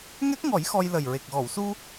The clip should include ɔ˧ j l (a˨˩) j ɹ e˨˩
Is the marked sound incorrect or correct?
incorrect